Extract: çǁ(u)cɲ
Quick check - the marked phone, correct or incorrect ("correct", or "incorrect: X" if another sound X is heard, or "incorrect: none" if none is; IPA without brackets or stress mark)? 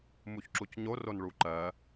correct